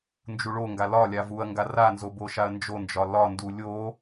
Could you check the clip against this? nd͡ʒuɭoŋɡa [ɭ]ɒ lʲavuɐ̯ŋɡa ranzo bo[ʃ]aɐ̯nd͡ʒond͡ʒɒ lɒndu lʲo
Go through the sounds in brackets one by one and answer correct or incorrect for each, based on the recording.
incorrect, correct

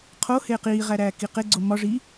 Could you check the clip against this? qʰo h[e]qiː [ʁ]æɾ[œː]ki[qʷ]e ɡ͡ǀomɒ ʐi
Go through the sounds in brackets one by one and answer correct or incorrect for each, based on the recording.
incorrect, correct, incorrect, incorrect

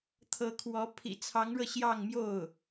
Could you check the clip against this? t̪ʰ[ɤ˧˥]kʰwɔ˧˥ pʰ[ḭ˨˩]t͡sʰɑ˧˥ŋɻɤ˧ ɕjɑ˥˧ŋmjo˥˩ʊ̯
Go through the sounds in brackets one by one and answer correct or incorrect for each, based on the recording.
correct, correct

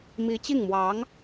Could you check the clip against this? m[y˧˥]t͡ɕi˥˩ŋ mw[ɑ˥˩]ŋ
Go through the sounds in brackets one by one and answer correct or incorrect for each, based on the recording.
incorrect, incorrect

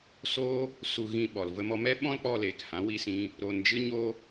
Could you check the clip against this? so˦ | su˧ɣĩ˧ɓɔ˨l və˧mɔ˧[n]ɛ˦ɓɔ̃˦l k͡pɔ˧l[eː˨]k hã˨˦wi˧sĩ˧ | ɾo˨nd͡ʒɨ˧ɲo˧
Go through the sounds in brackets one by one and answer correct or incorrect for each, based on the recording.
incorrect, correct

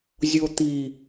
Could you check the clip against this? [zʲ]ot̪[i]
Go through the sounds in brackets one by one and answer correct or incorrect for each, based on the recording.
correct, correct

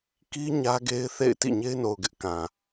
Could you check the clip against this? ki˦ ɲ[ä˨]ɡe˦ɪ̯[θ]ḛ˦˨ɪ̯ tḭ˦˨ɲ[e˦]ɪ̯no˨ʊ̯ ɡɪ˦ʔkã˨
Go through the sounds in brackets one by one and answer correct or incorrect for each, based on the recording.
incorrect, correct, correct

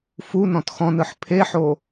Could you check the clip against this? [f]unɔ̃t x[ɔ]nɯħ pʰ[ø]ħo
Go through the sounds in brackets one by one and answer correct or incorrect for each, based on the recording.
correct, incorrect, incorrect

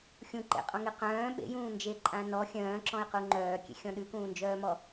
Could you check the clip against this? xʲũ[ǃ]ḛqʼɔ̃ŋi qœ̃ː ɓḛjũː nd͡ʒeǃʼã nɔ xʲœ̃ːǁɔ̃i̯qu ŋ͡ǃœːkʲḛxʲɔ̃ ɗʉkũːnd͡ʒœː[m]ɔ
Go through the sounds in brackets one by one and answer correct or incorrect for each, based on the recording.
correct, correct

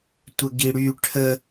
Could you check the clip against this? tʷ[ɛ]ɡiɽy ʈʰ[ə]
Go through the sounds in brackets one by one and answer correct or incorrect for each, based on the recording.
incorrect, correct

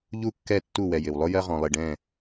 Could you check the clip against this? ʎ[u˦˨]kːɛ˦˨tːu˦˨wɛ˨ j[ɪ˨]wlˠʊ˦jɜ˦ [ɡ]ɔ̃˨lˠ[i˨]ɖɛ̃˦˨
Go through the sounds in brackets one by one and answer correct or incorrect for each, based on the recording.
correct, correct, incorrect, correct

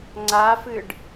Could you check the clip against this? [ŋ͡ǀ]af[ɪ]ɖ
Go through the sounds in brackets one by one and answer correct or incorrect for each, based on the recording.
correct, incorrect

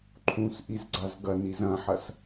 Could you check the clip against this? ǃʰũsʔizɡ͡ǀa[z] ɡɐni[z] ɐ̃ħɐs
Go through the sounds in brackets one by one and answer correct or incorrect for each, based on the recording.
correct, correct

